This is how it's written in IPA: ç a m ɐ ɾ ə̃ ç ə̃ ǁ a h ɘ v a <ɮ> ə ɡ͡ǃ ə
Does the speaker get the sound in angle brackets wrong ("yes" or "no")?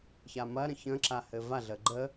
no